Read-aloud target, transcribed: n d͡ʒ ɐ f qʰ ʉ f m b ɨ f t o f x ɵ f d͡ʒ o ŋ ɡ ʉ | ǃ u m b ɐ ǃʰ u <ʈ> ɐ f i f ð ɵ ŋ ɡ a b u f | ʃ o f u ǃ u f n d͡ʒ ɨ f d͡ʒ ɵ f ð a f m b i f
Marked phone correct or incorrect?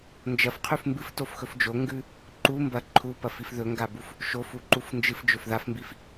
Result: incorrect